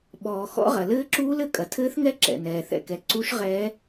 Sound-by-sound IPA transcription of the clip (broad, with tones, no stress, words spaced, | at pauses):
ɓɔː˨ xɔ̰˦˥ʁɐ˨ lɘː˦˥ǁuː˦˥lɘ˨ kʼɐ˨tʰɘː˦˥θŋɛ˦˥ ǁɛ̰˨ nɛː˨ θɛ̰˨kɛ˨ ǀu˦˥ʃʁɛː˦˥